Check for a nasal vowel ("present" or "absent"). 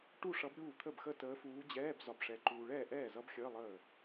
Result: absent